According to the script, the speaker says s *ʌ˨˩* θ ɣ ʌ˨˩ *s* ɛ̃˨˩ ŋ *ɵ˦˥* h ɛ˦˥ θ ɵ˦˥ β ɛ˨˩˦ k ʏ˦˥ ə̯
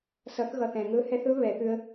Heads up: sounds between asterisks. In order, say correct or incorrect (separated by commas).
incorrect, incorrect, correct